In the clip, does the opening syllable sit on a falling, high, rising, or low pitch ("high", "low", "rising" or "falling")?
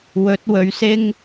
rising